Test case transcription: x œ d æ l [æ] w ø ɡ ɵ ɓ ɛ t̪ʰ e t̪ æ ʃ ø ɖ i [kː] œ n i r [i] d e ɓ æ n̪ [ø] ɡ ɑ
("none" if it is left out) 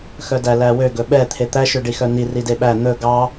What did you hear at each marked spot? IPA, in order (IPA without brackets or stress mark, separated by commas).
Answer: æ, x, i, ɵ